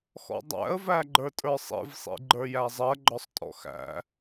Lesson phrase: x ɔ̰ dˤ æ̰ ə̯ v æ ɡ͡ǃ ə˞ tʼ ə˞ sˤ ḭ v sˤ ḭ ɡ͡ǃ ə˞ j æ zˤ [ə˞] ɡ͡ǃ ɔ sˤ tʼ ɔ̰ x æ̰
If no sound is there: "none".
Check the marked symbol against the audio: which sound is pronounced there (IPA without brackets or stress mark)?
ɜ